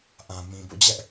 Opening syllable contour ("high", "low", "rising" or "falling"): low